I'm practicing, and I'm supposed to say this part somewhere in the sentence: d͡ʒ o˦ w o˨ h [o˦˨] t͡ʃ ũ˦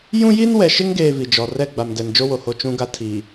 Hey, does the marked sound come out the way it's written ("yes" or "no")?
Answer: yes